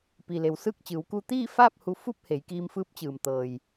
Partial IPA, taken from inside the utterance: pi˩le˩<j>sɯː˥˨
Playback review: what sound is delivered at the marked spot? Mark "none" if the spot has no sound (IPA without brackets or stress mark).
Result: w